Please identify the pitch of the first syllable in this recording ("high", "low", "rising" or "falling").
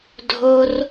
low